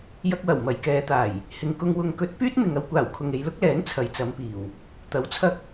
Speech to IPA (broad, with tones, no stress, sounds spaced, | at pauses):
j ɐ˧ k̚ w ɐ˨˩ w m ɐ˨˩ j k ɛː˨˧ t̪ aː˨˩ j | h ɪ˨ ŋ k ʊ˧ ŋ w ʊ˨ ŋ k ɵ˨˥ t̚ p yː˥ t̚ n̪ ɪ˨ ŋ ɐ˧ w kʷ aː˨˩ w kʰ ʊ˨ ŋ e˨˧ j l ʊ˨˥ k̚ l ɛː˨˥ n t͡sʰ ɐ˨ j t͡s ɐ˨˧ m p iː˨˩ w | t̪ ɐ˨˥ w t͡sʰ ɐ˥ k̚